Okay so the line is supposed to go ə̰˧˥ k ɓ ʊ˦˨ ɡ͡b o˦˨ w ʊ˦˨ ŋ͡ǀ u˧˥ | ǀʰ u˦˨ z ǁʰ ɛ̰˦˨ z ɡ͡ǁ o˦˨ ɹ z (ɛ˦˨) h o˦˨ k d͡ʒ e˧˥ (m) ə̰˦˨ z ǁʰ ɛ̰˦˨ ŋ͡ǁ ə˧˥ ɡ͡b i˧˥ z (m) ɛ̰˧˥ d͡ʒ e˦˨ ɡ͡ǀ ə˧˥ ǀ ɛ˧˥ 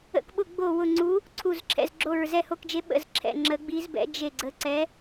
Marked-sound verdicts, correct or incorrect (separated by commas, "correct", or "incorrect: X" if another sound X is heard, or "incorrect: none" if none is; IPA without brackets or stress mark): correct, incorrect: ɓ, incorrect: b